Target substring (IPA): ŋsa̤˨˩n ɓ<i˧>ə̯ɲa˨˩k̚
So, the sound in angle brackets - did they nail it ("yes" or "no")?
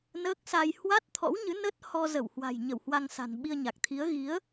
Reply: yes